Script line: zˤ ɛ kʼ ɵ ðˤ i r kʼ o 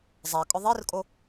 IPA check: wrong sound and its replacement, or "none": ɵ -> ʊ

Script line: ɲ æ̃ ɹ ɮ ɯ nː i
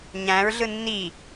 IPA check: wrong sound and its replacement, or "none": none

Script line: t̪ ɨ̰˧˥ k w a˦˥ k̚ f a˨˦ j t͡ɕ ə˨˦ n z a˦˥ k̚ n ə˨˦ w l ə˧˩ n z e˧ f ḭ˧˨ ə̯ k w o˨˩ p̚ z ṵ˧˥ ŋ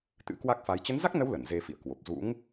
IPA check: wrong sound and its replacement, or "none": none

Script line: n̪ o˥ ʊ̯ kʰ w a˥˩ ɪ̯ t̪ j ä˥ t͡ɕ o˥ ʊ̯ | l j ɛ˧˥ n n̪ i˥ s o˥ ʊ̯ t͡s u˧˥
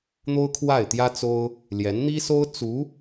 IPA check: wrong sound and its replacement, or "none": t͡ɕ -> t͡s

